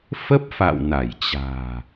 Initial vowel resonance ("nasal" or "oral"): oral